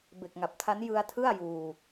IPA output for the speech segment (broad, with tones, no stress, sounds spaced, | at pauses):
b e˨˩ k̚ ŋ a˨˩ p̚ tʰ a˦˥ n j ɯ˧ a̯ tʰ ɯ˥˩ a̯ j uː˧